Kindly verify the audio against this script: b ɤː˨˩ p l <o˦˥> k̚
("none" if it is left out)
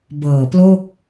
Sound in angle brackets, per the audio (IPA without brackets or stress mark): o˥˩